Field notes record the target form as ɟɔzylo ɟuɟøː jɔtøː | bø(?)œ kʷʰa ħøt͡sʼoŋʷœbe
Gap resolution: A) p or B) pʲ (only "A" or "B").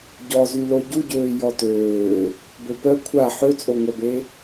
A